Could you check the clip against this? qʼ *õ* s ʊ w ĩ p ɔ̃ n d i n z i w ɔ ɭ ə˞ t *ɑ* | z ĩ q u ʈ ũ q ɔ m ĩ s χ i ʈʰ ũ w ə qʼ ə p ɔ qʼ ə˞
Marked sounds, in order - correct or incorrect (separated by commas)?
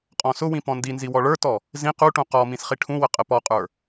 incorrect, incorrect